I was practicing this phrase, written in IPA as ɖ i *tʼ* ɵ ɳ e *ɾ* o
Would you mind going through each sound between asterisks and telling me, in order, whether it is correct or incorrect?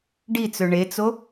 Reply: incorrect: t͡s, incorrect: t͡s

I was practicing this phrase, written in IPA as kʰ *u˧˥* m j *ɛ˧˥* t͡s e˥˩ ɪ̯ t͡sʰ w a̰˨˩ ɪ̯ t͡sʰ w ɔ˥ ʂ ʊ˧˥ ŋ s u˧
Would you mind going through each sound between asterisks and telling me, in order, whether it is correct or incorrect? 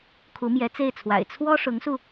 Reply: correct, correct

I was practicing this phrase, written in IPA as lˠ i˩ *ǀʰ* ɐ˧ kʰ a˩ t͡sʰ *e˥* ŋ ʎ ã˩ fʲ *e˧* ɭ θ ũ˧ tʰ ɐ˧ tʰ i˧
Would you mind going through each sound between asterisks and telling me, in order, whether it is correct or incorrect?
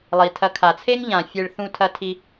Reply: incorrect: tʰ, correct, correct

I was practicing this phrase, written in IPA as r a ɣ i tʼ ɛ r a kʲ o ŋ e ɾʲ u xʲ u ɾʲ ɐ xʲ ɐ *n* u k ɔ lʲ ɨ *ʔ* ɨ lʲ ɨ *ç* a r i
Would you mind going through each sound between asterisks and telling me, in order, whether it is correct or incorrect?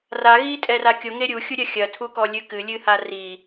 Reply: incorrect: tʰ, incorrect: k, incorrect: h

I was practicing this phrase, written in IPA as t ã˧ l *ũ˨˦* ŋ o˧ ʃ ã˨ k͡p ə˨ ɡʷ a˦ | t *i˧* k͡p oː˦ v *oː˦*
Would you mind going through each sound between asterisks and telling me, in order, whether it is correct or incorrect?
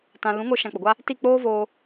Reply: correct, incorrect: i˦˨, incorrect: oː˧

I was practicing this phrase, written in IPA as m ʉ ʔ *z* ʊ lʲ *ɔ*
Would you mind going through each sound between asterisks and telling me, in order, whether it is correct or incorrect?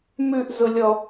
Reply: correct, correct

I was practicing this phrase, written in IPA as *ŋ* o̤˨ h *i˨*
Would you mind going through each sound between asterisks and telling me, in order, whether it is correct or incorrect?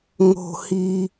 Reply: correct, correct

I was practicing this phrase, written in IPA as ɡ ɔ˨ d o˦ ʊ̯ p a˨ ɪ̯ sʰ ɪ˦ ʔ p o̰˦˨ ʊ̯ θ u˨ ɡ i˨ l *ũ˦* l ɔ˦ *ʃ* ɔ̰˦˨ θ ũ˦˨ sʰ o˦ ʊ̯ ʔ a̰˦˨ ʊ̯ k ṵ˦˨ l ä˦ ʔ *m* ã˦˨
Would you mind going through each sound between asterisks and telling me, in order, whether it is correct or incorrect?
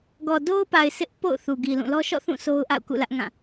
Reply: incorrect: ũ˦˨, correct, incorrect: ŋ

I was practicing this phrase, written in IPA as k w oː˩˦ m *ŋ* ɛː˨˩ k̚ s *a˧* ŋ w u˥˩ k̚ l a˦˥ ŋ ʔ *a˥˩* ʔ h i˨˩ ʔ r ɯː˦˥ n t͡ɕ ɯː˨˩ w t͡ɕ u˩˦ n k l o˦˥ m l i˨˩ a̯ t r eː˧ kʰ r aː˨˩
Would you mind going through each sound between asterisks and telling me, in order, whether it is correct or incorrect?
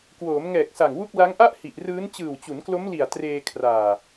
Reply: correct, incorrect: a˨˩, correct

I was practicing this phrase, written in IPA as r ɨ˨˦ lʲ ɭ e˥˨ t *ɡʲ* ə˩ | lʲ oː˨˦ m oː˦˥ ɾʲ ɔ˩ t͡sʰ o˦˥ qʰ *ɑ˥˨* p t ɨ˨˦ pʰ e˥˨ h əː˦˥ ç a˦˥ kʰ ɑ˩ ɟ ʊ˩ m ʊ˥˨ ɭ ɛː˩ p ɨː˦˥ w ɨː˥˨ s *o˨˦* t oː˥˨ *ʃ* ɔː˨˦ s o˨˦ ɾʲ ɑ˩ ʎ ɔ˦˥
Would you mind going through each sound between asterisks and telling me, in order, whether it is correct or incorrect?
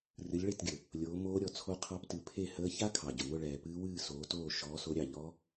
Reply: correct, incorrect: ɑ˦˥, incorrect: oː˨˦, correct

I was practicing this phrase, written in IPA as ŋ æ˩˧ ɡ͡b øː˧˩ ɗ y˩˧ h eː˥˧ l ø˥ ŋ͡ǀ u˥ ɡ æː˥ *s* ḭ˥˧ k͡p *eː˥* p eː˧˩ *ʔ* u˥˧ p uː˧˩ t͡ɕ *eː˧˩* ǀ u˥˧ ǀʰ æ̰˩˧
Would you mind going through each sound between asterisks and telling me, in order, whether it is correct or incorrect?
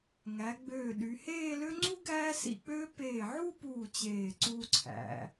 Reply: correct, incorrect: øː˥, incorrect: ʕ, correct

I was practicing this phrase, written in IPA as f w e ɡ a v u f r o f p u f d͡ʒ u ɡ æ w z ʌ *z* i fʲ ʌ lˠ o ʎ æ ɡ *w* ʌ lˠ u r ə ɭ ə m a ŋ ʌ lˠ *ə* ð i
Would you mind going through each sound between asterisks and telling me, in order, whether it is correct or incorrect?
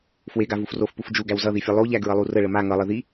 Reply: incorrect: ð, incorrect: ɹ, correct

